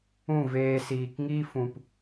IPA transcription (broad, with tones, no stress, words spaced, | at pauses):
ũ˦˨veː˧siː˨k ŋi˦fũ˨p